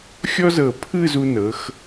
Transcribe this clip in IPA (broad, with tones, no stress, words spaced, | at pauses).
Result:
xʲɔ˥zɤ˧˩ pʰɯ˥˧zu˧nɤ˩˧x